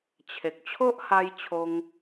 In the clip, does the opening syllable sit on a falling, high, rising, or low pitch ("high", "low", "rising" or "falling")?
low